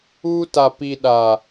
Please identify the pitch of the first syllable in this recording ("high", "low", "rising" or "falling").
high